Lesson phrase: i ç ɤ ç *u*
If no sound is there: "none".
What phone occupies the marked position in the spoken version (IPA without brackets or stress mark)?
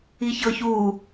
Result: uː